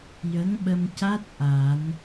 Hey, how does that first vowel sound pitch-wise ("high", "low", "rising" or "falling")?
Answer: rising